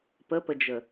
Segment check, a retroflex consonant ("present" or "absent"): absent